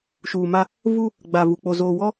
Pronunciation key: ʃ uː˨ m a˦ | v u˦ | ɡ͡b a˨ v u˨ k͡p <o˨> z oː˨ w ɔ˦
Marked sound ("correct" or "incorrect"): correct